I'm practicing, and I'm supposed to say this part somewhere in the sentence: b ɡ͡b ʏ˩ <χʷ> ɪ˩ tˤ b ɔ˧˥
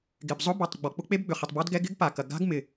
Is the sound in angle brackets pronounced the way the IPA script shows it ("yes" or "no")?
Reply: no